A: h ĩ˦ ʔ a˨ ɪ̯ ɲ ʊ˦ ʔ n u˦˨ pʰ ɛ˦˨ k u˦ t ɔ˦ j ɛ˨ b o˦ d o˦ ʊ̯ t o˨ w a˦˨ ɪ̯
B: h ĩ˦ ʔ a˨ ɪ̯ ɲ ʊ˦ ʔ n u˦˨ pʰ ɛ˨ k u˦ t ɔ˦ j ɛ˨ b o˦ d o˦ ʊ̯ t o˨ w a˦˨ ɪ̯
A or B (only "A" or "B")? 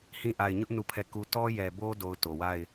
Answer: A